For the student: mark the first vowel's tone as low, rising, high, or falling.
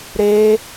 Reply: high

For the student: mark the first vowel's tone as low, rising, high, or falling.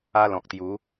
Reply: high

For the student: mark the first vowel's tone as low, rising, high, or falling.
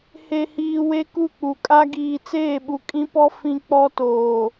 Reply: low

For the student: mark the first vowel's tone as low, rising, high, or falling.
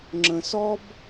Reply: low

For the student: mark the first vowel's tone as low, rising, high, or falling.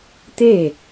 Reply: falling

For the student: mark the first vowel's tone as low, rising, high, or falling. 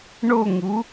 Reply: falling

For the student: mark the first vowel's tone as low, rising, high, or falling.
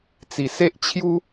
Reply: low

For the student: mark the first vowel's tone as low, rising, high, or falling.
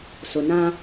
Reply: low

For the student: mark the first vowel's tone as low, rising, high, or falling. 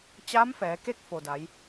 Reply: rising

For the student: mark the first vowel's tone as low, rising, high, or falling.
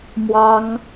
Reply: high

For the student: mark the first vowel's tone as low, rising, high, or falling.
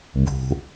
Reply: low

